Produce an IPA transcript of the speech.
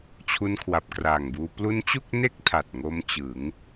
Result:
t͡ɕʰu˧nkʰwa˨˩p̚kraː˨˩ŋ buː˧ plu˦˥nt͡ɕu˥˩k̚ne˥˩k̚ tʰa˨˩t̚ŋo˦˥mt͡ɕɯ˩˦ŋ

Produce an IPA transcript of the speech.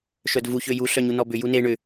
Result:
ʃœdvuç øju ɬœɲunɔbʏ june ɳʏ

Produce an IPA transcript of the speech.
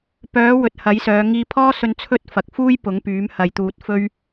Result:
pœː˨˥ wɵ˨t̚hɐ˨˥jsœː˨˧ ŋiː˧pʰɔː˥sɵ˧n t͡sʰɵ˥t̚ fɐ˨k̚fuː˥j pʊ˨˥ŋpyː˨˥m hɐ˧jt̪uː˧t̚ fɵ˥ɥ

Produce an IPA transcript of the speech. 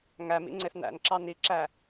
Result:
ŋæmḭ ŋ͡ǀeθnæ̰nǁɑ niǁæ

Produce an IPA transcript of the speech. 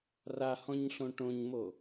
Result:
rahɔ̃ɲɬõ ʈõɲmo

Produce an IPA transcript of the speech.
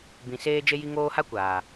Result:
bĩ˨ seː˧d͡ʒe˧ji˧ŋoː˧ ha˦kʷaː˨

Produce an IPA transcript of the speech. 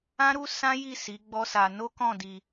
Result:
ã˦ɾu˦ sã˦ ji˦˨ si˨˦ɡ͡bɔ˦sa˧ no˦kɔ̃˦˨di˧

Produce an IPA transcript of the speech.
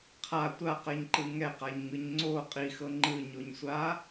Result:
qʰa tʷaqɛɲǃɯ ŋɛqaɲŋɯɲ ŋ͡ǀo qʼixɤ ŋ͡ǃɯɲoɲsʷa

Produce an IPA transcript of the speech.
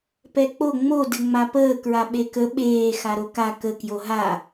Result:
pɛk͡po ŋ͡mo dɘŋ͡mapəː kɹaɓekə ɓeː xaɾoka kə kjoɦa

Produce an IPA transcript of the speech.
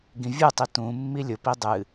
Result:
ɡĩvʲɯtˤi tũ mːilʲʊpi dˤɨ

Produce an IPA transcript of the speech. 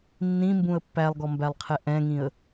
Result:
nːĩmbũə̯ pːælˠɡɔmbælˠqʰɛ ʔɛ̃ŋĩə̯

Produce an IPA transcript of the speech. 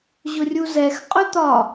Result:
ʑʊrʲuzɛx qʼɵt̪ɒ

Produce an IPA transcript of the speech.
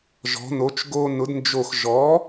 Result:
ʒɔ̤˩˥no˩˥t͡ʃ ɡo˧nʊ˩˥dnd͡ʒo˧˩x ʒɔ˩˥

